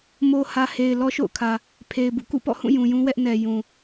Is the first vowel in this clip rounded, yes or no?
yes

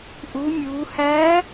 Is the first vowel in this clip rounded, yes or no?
yes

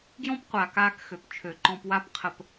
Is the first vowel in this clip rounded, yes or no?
yes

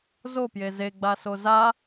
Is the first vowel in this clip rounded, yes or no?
yes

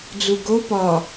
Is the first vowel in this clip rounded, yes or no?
yes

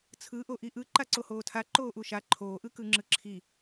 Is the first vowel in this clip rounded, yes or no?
no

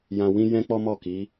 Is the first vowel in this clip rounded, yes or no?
no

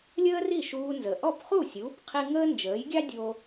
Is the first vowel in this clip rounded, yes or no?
no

